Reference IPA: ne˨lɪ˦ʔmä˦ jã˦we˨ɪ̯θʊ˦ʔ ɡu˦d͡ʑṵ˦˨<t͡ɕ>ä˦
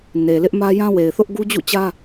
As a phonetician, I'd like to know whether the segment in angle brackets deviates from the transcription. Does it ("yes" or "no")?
no